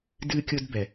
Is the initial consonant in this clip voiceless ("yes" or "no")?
no